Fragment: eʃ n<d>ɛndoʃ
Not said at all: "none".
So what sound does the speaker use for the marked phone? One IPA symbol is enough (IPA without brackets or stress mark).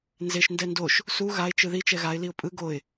d